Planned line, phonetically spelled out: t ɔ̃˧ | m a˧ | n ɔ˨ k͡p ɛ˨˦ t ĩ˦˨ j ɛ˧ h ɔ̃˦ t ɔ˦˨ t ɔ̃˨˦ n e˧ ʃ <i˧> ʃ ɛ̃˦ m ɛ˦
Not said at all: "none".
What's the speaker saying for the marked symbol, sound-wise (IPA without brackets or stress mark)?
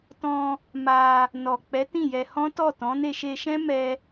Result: e˧